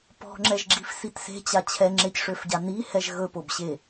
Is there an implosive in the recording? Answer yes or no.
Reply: no